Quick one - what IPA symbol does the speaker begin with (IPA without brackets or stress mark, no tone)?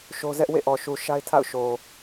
ʃ